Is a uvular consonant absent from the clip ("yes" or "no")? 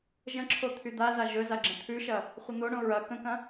no